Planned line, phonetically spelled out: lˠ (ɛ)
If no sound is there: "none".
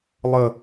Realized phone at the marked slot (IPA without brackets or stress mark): ə